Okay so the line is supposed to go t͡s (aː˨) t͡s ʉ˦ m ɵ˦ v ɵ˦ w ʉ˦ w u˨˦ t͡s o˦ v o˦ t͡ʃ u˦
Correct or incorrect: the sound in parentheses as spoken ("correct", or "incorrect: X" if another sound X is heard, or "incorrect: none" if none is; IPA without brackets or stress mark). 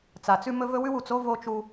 incorrect: a˨